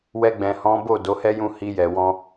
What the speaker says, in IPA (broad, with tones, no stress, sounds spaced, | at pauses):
w ɛ˧ ɡ͡b ɛ̃˨ h ɔ̃˨˦ b o˦˨ d o˨˦ h ɛ˦ j ũ˦˨ h i˧ j ɛ˨ w ɔ̃˧